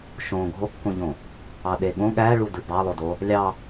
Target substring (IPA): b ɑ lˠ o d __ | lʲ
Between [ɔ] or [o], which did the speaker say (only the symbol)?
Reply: o